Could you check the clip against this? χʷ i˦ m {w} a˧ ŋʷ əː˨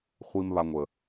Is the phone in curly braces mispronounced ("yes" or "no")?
yes